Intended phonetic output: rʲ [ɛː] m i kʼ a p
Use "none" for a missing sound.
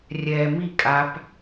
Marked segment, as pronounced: ɛː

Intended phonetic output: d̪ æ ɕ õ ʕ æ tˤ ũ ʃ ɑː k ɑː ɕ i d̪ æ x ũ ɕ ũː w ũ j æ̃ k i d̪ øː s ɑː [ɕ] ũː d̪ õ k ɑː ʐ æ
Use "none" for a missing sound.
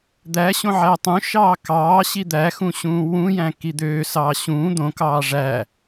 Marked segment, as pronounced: ɕ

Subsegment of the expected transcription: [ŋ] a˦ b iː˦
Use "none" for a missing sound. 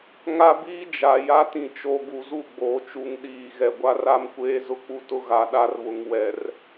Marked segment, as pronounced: ŋ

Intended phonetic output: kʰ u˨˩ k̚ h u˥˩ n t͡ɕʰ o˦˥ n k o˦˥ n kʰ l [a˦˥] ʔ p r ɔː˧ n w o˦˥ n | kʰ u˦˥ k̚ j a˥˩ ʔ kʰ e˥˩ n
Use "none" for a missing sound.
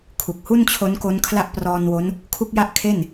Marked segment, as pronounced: a˥˩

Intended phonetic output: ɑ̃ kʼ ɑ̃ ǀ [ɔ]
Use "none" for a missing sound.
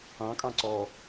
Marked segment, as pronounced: ɔ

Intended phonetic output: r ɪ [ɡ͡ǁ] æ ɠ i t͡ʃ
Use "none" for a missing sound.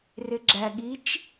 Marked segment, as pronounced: ɡ͡ǁ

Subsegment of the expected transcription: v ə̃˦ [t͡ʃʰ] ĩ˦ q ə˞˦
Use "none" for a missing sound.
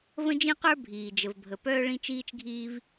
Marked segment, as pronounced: d͡ʒ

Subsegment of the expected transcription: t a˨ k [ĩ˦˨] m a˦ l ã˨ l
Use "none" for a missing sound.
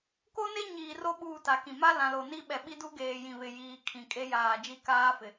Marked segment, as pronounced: ĩ˨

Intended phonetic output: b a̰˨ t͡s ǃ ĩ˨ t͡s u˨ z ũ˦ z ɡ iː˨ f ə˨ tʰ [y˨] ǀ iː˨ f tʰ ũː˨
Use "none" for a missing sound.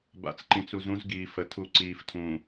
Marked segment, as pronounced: u˨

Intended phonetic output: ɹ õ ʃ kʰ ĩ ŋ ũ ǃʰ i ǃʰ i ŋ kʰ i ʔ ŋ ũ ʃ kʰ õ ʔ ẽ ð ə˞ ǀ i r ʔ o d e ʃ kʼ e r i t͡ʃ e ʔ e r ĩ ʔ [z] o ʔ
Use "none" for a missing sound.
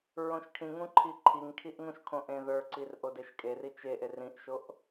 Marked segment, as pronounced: ʃ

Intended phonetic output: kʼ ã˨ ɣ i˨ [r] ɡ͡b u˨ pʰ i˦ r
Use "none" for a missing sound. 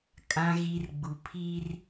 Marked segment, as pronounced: r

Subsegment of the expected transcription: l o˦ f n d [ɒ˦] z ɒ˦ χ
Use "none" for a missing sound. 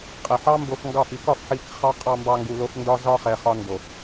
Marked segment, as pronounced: ɒ˦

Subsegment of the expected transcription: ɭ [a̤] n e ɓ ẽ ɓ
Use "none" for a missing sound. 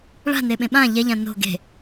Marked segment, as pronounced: a̤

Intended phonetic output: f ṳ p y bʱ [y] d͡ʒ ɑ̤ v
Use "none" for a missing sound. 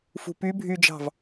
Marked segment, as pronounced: y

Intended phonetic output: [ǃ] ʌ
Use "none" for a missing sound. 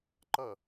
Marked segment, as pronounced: ǃ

